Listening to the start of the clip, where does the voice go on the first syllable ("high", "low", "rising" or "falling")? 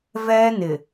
high